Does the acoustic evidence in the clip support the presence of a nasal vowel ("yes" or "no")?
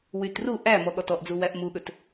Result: no